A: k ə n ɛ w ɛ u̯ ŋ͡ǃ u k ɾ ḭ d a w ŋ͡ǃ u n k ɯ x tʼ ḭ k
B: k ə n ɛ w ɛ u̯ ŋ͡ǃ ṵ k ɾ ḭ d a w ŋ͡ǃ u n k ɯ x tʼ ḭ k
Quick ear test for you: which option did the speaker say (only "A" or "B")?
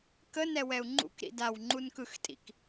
B